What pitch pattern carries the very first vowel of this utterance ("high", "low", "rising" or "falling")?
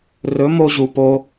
rising